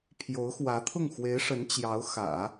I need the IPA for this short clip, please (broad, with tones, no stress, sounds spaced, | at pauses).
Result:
pʰ j o˧˥ ʊ̯ x w ä˧˥ t̪ʰ ʊ˥˩ ŋ x w e˧˥ ɪ̯ ʂ ə˧˥ n t͡ɕ j ɑ˧˥ ʊ̯ x ä̰˨˩˦